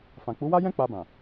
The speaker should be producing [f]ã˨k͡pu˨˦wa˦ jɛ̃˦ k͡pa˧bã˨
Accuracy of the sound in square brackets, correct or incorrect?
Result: correct